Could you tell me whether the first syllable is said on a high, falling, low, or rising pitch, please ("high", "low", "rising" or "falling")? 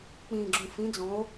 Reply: low